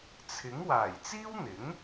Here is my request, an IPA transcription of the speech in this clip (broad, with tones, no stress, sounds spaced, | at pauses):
t͡sʰ ɪ˨˥ ŋ w aː˨˩ j t͡s iː˥ w n̪ ɪ˨˥ ŋ